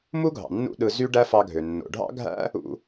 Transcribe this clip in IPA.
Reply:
m u˥ ɡʱ ɑ̰˩ nː ṵ˥ ɗ ɯ˧ z y˥ ɖ æ˥ f ɑ˧ ɡʱ ø˩ nː o̰˩ ɖʱ ɑ̰˥ ɡʱ æ̰˥ | ṵ˧

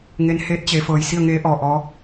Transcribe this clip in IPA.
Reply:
ŋ e˧˥ n h eː˧˥ t̚ t͡ɕ e˩˧ f ɤː˩˧ j s i˥˨ ə̯ ŋ eː˧˥ ʔ ɔː˩ ʔ ɔː˧˥

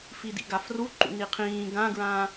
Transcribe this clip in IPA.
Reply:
f i d ḭ ɡ a f r u ǃ ṵ n i qʰ ĩː ɡ ã ɡ ɹ ãː

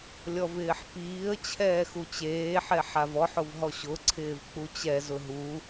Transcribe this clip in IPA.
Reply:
lʲ ɔ v ɪː ħ p iː ə̯ t͡ɕʰ ɛː x u t͡ɕ eː ħ ɛ ħ a v ɔ ħ ʊ v ɦ ɔ ɕ ʊ ǀʰ ɪː v k͡p u t͡ɕ ɛ z ʊ ɦ u

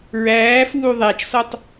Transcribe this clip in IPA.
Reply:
ɹ æː f uː ðˤ æ t͡ʃ s ɔ tˤ

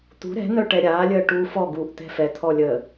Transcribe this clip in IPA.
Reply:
t̪ ṳ ɾ ɛ̤ n̪ œ ʈ ɛ ɾʲ aː lʲ əː ʈ uː f ɔ ɡ uː ʔ t̪ ɛ̤ f ɛ t̪ʰ ɔ lʲ ə

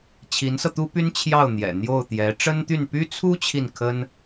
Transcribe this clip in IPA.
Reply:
t͡ɕʰ i˧˥ n s ɤ˧ t̪ u˥ p y˥ n t͡ɕʰ j ɑ˥˩ ʊ̯ n̪ j ɛ̰˨˩ n̪ j o˥˩ ʊ̯ t̪ j ɛ˧˥ ʈ͡ʂ ə˥ n t̪ y˥˩ n p y˥ t͡sʰ u˥ t͡ɕʰ i˥˩ n kʰ ə˥ n

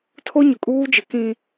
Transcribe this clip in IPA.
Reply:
tʰ o˦ ɲ ʊ˨ kʼ uː˦ d͡ʒ ɪ˨˦ k ĩ˦

